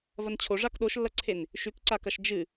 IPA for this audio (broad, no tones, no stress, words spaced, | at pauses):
vɐnt͡ɕʰoʐak ɗoʃlːɐǀʰen | ʃʉkǀakɐʃ d͡ʒɨ